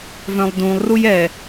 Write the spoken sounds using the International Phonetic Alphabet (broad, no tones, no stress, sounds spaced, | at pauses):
v œ̃ lˠ d ũ lˠ r u j ɛ